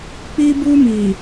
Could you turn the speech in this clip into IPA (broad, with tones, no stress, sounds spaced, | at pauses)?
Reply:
k͡p iː˦ b uː˦ m iː˨